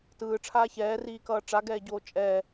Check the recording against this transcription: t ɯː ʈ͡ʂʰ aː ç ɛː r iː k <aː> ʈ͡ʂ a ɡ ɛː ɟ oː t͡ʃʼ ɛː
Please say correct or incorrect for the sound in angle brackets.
incorrect